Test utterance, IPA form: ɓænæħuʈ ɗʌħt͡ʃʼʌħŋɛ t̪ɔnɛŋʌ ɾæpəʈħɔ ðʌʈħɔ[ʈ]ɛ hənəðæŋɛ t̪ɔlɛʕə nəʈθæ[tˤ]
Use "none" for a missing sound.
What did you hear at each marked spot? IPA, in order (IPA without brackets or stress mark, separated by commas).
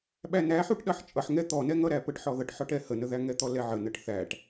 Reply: ʈ, ʈ